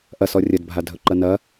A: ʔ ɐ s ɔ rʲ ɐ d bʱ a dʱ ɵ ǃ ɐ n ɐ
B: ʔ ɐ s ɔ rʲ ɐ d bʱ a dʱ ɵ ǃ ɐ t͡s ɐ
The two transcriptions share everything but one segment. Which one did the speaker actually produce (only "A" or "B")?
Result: A